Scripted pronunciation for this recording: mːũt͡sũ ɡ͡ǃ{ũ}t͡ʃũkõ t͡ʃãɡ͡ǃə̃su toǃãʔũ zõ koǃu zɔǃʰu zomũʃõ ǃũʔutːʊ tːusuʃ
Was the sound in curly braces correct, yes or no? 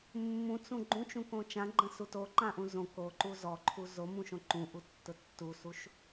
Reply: yes